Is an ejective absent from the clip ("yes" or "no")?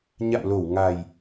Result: yes